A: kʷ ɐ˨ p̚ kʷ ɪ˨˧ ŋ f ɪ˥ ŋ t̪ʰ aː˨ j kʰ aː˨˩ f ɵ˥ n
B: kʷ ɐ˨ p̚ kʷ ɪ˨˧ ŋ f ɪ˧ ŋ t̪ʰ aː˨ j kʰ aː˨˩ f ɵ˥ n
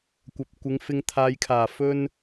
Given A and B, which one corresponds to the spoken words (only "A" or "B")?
B